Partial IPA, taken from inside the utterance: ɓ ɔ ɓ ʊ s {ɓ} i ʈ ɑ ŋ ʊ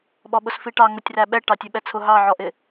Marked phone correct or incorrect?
incorrect